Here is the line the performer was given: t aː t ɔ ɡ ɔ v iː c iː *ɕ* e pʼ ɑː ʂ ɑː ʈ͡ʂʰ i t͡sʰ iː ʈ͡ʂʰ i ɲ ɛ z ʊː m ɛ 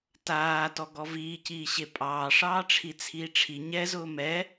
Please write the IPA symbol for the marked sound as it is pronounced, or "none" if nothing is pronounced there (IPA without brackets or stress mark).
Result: ɕ